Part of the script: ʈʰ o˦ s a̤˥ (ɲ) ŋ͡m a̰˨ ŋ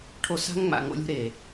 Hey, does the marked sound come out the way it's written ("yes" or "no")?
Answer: no